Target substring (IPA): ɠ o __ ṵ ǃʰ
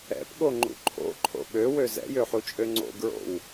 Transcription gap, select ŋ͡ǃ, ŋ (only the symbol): ŋ͡ǃ